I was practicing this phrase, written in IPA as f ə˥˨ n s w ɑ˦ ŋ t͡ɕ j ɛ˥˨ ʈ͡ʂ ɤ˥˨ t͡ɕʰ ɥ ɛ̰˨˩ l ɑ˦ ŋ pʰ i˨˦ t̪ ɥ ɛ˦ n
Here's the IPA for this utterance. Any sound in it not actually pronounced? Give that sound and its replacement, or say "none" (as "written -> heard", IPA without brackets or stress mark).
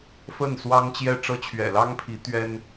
none